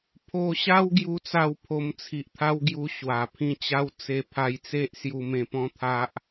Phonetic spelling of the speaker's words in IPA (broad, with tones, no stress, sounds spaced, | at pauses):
pʰ o˧ ɕ a˦ w ɡ j u˦ t͡s a˥˧ w pʰ o˧ m t͡sʰ i˨ ʔ t̪ʰ a˦ w ɡ j u˧ ɕ w a˨˩ pʰ ĩ˥˧ t͡ɕ a˦ w t͡s e˧ pʰ a˧ j t͡s e˦ ʔ s j u˧ m ẽ˧ p ɔ̃˦ t̪ʰ a˦ ʔ